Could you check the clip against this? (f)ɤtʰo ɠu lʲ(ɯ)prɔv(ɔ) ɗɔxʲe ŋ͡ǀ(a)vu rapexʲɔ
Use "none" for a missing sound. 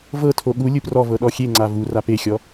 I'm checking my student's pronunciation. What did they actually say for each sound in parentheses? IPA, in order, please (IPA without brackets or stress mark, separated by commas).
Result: v, ɯ, ɤ, a